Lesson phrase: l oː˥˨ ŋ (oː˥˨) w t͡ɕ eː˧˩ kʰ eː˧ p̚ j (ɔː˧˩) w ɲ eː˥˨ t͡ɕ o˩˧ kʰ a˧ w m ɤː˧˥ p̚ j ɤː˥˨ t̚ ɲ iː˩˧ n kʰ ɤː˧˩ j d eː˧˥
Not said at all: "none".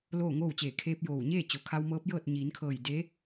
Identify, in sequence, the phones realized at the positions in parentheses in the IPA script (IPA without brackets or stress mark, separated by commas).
oː˥˨, oː˧˩